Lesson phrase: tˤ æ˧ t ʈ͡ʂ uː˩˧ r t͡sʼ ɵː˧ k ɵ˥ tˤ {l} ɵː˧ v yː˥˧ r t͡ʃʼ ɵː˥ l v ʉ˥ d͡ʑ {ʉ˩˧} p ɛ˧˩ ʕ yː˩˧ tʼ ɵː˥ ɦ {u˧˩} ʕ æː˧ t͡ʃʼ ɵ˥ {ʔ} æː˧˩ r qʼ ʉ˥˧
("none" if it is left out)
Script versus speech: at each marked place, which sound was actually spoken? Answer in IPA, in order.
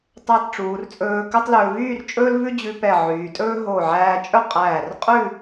l, ʉ˧, o˧˩, qʼ

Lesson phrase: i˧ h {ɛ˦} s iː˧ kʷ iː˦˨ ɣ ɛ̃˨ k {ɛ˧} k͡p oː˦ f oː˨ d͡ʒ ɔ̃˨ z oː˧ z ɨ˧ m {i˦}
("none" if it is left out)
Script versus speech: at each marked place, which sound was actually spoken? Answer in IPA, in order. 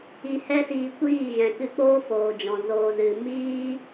ɛ˦, ɨ˧, iː˦

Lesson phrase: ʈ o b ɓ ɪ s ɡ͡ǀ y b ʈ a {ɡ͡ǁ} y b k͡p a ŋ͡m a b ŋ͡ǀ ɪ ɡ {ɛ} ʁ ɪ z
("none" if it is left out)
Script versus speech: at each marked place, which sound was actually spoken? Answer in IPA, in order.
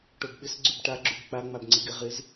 ɡ͡ǁ, ɪ

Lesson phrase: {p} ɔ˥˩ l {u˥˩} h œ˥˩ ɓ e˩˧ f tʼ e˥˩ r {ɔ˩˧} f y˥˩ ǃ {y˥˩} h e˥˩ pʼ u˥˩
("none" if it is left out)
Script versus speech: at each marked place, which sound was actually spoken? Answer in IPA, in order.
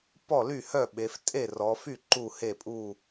p, y˥˩, ɔ˩˧, u˥˩

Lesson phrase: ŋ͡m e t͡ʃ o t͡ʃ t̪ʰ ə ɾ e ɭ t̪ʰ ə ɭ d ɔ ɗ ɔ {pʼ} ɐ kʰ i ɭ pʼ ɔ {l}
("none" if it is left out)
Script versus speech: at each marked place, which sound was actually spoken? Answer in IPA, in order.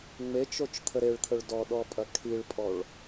pʼ, ɭ

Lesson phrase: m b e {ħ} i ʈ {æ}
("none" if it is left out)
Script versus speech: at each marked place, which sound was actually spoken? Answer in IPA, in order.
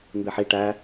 ħ, æ

